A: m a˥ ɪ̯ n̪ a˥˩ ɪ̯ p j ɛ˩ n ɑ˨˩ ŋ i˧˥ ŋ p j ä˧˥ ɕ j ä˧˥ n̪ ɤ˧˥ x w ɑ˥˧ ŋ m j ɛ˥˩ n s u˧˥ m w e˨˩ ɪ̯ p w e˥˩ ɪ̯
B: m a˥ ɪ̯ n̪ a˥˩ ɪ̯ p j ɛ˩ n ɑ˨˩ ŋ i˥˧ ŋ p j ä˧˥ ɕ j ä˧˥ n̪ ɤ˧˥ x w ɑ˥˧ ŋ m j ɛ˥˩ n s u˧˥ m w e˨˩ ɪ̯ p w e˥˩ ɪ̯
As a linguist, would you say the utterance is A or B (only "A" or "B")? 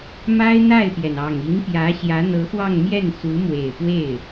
A